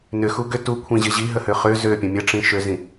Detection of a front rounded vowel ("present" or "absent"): present